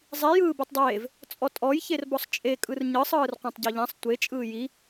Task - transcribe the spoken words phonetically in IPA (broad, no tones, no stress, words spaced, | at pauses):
zˤi jɯːbitˤdˤeːv | t͡sʼɔtʼɔj çerbɔsˤt͡ʃʼe kʼɯrɲɯsˤ ɯːrqʷãtˤɟɔʎãsˤ tʷe t͡ʃʼɯːji